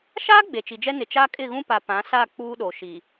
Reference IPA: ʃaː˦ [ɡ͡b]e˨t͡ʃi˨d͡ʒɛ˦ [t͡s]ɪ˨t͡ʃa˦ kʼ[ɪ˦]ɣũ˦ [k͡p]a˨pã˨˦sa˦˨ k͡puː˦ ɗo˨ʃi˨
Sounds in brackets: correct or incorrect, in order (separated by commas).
correct, incorrect, incorrect, incorrect